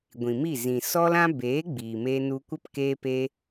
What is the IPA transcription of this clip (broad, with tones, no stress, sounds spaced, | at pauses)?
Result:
ɡʷ ĩ˨ m i˦˨ z ĩ˨ s ɔ˦ l ã˦ b eː˨˦ ɡ͡b iː˨ m eː˧ n u˧ kʷ ə˦ p k eː˦ p e˦